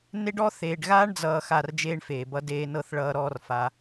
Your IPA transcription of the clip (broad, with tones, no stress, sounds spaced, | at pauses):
n e˦ ɖ ɔ˦ θ eː˨ ɖ ɣ aː˦ ɳ d͡z ʌː˨ x a˦˨ r d͡ʒ eː˦ ɳ f eː˨ b ʌ˦ d eː˧ n ɤ˦˨ θ ɭ ʌː˧ ɾ ɔː˦ r f a˧